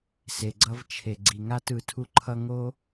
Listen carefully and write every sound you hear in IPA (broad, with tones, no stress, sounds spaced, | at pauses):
s e˨ ɡ͡ǀ ʌ˦ v t͡ʃʰ e˨ ɡ͡ǀ i˨ ŋ a˦ t ɯ˨ tʰ u˧ ǃʰ ʌ˧ ŋ o˦